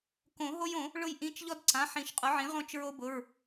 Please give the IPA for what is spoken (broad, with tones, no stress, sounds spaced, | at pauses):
k õ˨˩˦ ɦ o˦ j õ˨˩˦ | ɭ ʊ˦ j ʔ ĩ˩˧˩ t͡ʃ ʎ ɔ˦ d ǀ ã˩˧˩ ħ ĩ˨˩˦ ʃ qʼ ʊ˩˥ ʕ ĩ˩˥ ʁ õ˦ t͡ʃ ɹ o˦ b ʊ˩˧˩ ɹ